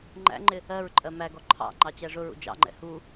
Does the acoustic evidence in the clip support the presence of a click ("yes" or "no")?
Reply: yes